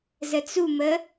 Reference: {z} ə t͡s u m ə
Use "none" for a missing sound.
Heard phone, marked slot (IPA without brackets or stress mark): z